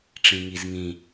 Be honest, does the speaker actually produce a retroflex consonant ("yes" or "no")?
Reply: yes